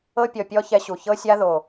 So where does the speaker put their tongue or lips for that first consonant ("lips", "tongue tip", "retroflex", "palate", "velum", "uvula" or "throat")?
lips